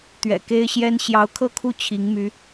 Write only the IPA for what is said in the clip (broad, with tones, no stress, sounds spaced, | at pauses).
t̪ ɥ ɛ̰˨˩ k e˥ ɪ̯ ɕ j ɛ˥ n ɕ j ɑ˧˥ ʊ̯ kʰ ɤ˥˧ kʰ u˥˩ t͡ɕʰ i˧˥ ŋ m y˧˥